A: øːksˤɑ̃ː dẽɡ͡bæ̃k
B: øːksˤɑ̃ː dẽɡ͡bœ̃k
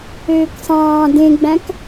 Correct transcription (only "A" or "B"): A